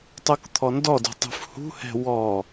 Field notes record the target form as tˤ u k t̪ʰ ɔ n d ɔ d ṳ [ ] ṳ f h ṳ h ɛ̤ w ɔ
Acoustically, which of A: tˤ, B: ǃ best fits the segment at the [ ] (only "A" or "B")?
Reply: A